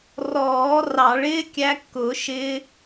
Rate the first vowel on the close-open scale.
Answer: mid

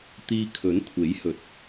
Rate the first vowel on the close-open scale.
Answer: close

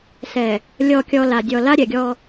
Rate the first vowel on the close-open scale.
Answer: mid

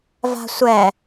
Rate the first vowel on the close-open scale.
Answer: open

